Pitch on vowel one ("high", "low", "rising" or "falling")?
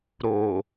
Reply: low